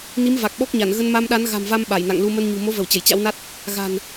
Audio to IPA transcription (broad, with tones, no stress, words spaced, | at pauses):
ni˨˦m va˨˩k̚ɓɔ˦˥k̚ɲa˧˩n ɣə˧nma˧mɗa˨˦n ɣa̤˨˩mva˧m ɓa˧˩jna̰˧˨ŋlu˧ mə˧nɲṳ˨˩ mo˨˦və˧˩w t͡ɕə˧˩jt͡ɕa̰˧˥wna˦˥t̚ | ɣa̤˨˩n